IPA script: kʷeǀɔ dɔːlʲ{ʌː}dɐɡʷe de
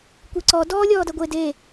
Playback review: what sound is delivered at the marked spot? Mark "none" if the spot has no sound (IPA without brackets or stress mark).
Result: ɔː